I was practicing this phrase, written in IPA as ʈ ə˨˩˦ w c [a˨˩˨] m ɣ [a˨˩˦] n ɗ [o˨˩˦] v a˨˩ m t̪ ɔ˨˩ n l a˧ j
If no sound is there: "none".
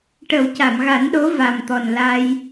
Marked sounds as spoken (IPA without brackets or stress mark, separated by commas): a˨˩˨, a˨˩˦, o˧˥